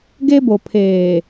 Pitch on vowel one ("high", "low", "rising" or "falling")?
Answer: high